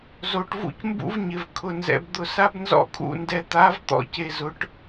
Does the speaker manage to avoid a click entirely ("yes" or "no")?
yes